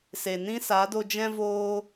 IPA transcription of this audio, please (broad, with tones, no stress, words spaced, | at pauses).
se˨nĩ˦ sa˨˦do˧d͡ʒɛ̃˦voː˦